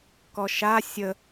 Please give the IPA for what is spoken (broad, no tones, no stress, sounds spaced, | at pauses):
k ɔ ʃ a sʲ ə